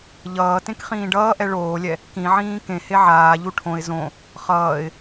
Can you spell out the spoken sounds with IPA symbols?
ʎ ʌː t ẽ k χ ĩː ɖ ʌː ʔ ɛ ɭ oː lʲ ɛ | k ĩ ʕ ĩː k ẽ h e ʕ aː ʎ u ʈʰ õ ɪ̯ z õ | χ ʌː ɪ̯

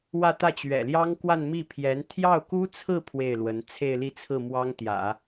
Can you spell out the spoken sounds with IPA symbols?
w ä˥˧ t̪ ä˥˩ t͡ɕ ɥ ɛ̰˨˩ l j ɑ˥ ŋ k w a˥˧ n m i˥˩ pʰ j ɛ˧˥ n t̪ʰ j ɑ˥˩ ʊ̯ k u˥ t͡sʰ ɹ̩˥˧ pʰ w e˥˩ ɪ̯ l w ə˧˥ n t͡sʰ e˥˧ ɪ̯ l i˥˧ t͡sʰ ɹ̩˥˩ m w ɑ˥ ŋ t̪ j ä̰˨˩˦

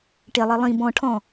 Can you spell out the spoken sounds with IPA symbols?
ʈ e lˠ i lˠ ĩ b ɔ̃ ʈʰ ɔ̃

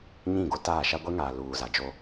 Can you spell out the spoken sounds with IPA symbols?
ɲ ĩ˦˨ ɡ o˦ t aː˦˨ ʃ a˦ ɡʷ e˦ ŋ aː˨ l uː˨ z a˨ d͡ʒ o˦

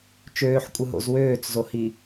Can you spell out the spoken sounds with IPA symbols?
t͡ʃ øː ħ kʷʼ ɯ ɦ o̰ z w øː t͡s z o h i

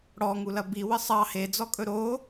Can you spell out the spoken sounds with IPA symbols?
ɽ ɔ ŋ u l ɐ b i w ə sˤ ɑ h e d͡z ɔ kʼ ɵ ɾ o

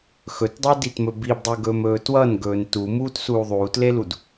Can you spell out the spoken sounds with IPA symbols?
x ɵ t dˤ ʌ d i t m ɵ b i b dˤ u ɡ ɵː m ɵː t w ʌ n ɡ ɵː n t u m uː t s uː ðˤ uː t l e l u d

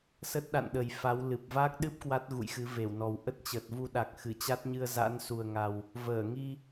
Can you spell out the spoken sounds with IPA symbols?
s ə˦˥ t̚ ɗ a̰˧˨ n ɗ ə˨˩ j f a˨˦ w l ɨ˨˩ p̚ v aː˦˥ k̚ ɗ ɨ˦˥ p̚ k w a˦˥ t̚ ɣ ṵ˧˨ j x ɨ˨˦ v e˧˩ w n ɔ˨˩ w ʔ ə˦˥ t̚ t͡ɕ ə˨˩ t̚ v u˧ ɗ a˨˩ k̚ x ɨ˧˩ t͡ɕ a˦˥ t̚ ɲ ɨ˧ ə̯ z a̰˧˥ n s u˨˩ ə̯ ŋ a˨˩ w | v əː˧˩ ŋ i˧

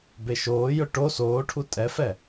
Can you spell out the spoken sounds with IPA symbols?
b e ʃ oː j ʊ ʈ o s oː ʈʰ u tʼ ɛ f ɛ

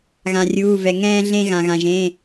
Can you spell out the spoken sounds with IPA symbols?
ɣ ã˧ rʲ uː˧˥˧ v ɛ˧ ŋ ɛ̃ː˥ ɮ ẽ˥ ɣ ã˧ ɣ ã˧ ʒ ẽ˧˥˧

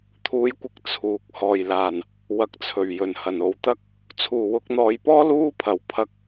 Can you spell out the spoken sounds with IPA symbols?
t̪ʰ uː˨˧ j kʷ ɪ˨˥ k̚ t͡sʰ uː˨ k̚ h ɔː˨˩ j l aː˨˩ n | w ɐ˨˥ k̚ t͡sʰ ɵ˨˩ ɥ j ɵ˨˩ n h ɐ˨˩ n o˨˧ w t̪ ɐ˥ k̚ | t͡sʰ uː˨˩ w ʊ˧ k̚ n̪ ɔː˨˧ j p ɔː˥ l uː˥ pʰ ɐ˨˥ w pʰ ɐ˧ k̚

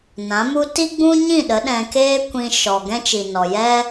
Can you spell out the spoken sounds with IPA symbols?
n ã˨˦ m u˦ t i˦ ɡ͡b ũ˦ ɲ ĩ˦˨ ɗ ə˨˦ ɗ ɛ̃˧ k eː˦ kʷ ĩ˧ ʃ ɔ˨ ɡ ɛ̃˦ t͡ʃ i˨ n ɔ˨ j ɛ˦

